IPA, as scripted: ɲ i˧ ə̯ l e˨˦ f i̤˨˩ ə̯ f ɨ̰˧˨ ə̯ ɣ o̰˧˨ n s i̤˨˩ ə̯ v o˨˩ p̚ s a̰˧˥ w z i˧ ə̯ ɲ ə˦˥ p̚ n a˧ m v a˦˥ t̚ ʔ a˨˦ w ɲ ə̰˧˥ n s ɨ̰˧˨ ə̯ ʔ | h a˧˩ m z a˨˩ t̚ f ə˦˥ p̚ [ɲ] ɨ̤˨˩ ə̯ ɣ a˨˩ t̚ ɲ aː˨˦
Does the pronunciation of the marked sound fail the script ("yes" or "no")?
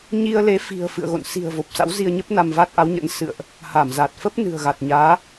yes